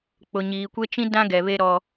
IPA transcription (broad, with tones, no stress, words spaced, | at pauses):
k͡pʊ˨ɲiː˨kʷe˦t͡ʃĩ˦ dã˦ ɡɛ˨βe˦ ɾɔ˦